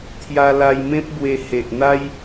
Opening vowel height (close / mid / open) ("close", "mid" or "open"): open